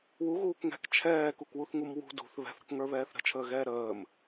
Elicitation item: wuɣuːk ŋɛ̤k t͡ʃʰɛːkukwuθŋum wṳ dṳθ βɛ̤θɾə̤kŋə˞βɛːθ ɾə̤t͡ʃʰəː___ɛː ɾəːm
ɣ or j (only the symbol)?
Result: ɣ